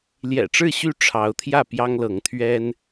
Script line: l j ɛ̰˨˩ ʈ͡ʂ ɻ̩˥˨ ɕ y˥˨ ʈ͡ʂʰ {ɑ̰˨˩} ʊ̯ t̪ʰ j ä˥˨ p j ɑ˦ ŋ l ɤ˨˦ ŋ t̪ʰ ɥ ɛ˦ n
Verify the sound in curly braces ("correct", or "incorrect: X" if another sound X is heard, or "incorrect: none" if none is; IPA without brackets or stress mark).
incorrect: ɑ˨˦